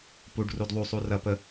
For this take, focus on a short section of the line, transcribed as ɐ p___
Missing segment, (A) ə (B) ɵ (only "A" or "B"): A